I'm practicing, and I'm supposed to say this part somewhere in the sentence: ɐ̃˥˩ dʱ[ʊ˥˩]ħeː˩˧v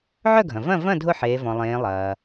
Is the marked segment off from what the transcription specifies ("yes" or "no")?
no